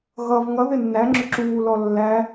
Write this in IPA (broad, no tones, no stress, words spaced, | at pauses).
ɣʌv ŋʌðɪ nːæŋ͡ǁʊ ǁuːlɔ lːæ